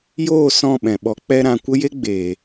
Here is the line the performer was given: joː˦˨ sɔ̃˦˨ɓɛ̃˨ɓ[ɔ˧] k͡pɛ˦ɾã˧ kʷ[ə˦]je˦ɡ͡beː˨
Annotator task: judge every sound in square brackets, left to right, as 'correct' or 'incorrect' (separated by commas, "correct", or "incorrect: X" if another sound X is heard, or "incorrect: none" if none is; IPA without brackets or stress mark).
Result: correct, correct